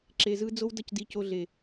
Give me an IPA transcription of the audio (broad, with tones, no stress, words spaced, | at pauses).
ǁe˨zɯ˧ d͡zo˧wdʌ˧cdi˨ co˧ ɮe˨